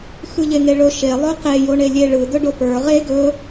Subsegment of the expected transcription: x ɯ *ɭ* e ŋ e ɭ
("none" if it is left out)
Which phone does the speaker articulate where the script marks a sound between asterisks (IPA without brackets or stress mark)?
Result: ʎ